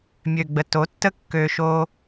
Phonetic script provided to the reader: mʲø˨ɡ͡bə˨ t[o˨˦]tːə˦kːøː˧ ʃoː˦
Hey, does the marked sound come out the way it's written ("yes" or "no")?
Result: yes